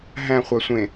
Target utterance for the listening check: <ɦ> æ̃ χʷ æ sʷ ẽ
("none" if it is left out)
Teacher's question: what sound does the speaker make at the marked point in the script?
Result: ɦ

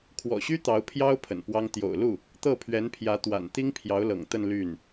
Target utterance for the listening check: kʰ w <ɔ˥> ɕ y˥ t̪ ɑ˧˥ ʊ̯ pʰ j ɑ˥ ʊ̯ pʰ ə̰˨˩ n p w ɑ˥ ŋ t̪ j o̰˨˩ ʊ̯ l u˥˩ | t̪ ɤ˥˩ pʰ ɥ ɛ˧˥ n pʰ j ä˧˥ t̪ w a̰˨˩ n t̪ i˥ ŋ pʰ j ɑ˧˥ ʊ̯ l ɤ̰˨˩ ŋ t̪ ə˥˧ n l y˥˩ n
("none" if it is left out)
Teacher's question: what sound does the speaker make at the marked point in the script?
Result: ɔ̰˨˩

